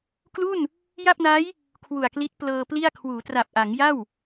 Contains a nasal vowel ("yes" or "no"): no